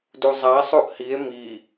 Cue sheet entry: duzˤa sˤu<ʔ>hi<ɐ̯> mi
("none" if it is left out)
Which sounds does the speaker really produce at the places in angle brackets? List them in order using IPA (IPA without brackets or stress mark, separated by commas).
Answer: ʔ, e̯